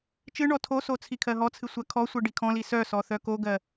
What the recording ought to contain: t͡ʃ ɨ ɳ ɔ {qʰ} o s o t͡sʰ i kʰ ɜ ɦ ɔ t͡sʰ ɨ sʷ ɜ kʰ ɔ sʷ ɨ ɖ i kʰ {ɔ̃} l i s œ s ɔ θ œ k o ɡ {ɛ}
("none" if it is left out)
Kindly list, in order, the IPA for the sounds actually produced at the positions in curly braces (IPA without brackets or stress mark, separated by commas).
tʰ, ɔ̃, ɜ